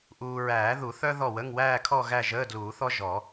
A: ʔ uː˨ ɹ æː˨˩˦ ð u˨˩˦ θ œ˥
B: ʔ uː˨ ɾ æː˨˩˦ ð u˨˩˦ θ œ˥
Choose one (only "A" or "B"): A